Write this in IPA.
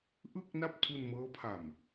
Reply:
ʔ ɯ˥˩ k̚ n a˥˩ p̚ tʰ u˧ n m ɤː˦˥ pʰ a˨˩ m

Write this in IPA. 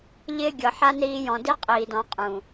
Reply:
ʎ ɪː˦ ɡʲ ɤ˨ ħ a˦ n ɾ iː˧ j ɔ̃˨ d i˦ qʼ iː˨ d ɔ̃˨˦ qʼ ũ˨

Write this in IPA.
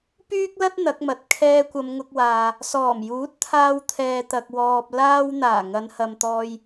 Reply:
p yː˥ k̚ l ɐ˥ t̚ n̪ ɐ˨˥ k̚ m ɐ˨ t̚ kʰ ɛː˧ kʷ ɐ˨˧ m ŋ ʊ˧ k̚ w aː˨ | s ɔː˨˩ m j uː˨˥ t̚ t̪ʰ aː˧ w t̪ʰ ɛː˨ t̪ ɐ˨ k̚ w ɔː˨ p̚ l aː˥ w n̪ aː˨˩ ŋ ɐ˨˧ n h ɐ˨ m t̪ ɔː˧ j

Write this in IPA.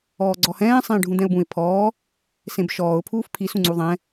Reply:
ɔː ɡ͡ǀ ɔ h ɛ̃ː sˤ ẽː ɖʱ ũ d̪ ɛ̃ ʊ̯ b ũ ɪ̯ pʰ ɔː | s ẽ b ʃ ɔː ʊ̯ pʰ uː f pʰ i s ũ ŋ͡ǀ u ðˤ ɛ̃

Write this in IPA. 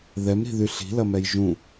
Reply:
ð ɛ m ɾ i̤ ð y ɬ i̤ l ɐ m ɛ j ʒ ũ

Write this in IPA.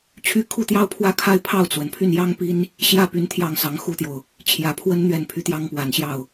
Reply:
t͡ɕʰ y˥˧ kʰ u˥˩ t̪ j ɑ˥ ʊ̯ pʰ w ä˥ kʰ a˥˧ ɪ̯ pʰ ɑ˥˩ ʊ̯ t͡s w ə˩ n pʰ y˥˩ n j ɑ˥ ŋ p i˥ n | ɕ j ä˥˩ p y˧˥ n t̪ʰ j ɑ˥˩ ŋ s ɑ˧˥ ŋ x u˥ t̪ j o˨ ʊ̯ | t͡ɕʰ j ä˨˩ pʰ w ə˥ n n̪ ɥ ɛ˥˩ n pʰ y˧˥ t̪ j ɑ˥ ŋ p w a˨˩ n ɕ j ɑ˥˩ ʊ̯

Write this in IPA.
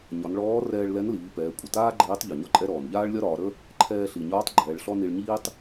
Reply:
ɲ ɒ˩˧ n ɭ ɔː˧˥ r ɛː˧ ɭ l ɛ˧˥ n l iː˩˧ p ɛː˩˧ kʷʼ ə˩ t aː˥ ɡ͡ǃ iː˧˥ tˤ ʎ ɔ˩ ɲ ɒ˥ ǃʼ ɛ˥ ɾ ɔː˩ n ʎ aː˥ ɭ lʲ ɒ˥ ɾ ɒː˩˧ ɾ ə˥ | ǃʰ ɛː˧ ɬ i˩ ɲ ɒː˧˥ tˤ ɡ͡ǃ ɛː˩˧ ɭ ɬ ɔ˥ n i˧ ɭ ɲ iː˥ tˤ

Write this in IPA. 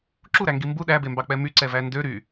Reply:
ǁ u ɾ æ ŋ ɡ i m b u ɗ æ b e m b ɑ k͡p ɛ m y ǀ ɛ v æ n d ø ɾ y

